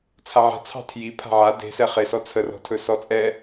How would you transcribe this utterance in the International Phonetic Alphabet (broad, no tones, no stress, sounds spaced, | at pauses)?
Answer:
t͡sʰ a ʕ a̤ t͡sʰ ɑ̤ tʰ j i pʰ a̤ ʕ a d e̤ s ɛ χ e s ɔ t͡sʰ ə r ɔ̤ tʰ ɵ s ɔ t͡sʼ ɛ